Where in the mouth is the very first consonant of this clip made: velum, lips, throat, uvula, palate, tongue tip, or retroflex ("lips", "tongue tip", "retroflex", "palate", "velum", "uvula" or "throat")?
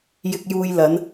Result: palate